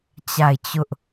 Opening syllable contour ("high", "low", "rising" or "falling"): falling